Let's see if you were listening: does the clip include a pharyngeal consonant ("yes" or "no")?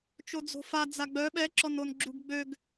no